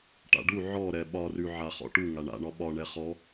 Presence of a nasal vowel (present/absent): absent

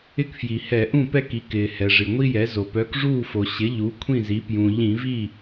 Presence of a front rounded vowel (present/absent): present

